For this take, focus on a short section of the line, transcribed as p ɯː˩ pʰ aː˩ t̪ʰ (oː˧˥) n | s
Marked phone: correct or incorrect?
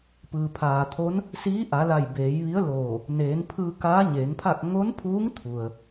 incorrect: o˧˥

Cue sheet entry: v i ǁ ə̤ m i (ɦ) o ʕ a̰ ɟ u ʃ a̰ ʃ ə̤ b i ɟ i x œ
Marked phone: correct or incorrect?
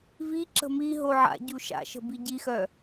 correct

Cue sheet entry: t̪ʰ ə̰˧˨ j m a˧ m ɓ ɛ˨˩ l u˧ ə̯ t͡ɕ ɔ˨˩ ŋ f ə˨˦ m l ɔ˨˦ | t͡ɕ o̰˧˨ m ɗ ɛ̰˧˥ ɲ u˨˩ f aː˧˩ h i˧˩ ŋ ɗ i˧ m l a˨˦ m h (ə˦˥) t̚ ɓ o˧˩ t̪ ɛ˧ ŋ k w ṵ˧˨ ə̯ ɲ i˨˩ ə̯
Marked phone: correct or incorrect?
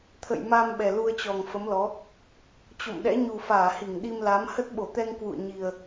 correct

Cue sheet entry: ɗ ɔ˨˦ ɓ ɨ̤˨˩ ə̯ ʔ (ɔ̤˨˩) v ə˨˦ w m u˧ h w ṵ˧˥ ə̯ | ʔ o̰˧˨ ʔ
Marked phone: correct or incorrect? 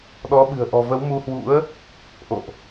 correct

